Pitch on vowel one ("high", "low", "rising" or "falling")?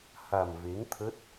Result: low